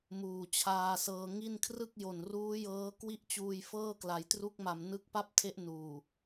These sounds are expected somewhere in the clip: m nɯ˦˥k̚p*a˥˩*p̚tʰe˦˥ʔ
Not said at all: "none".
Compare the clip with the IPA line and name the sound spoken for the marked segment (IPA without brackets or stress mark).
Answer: a˥˩